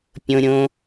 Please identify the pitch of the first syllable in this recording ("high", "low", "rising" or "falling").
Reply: high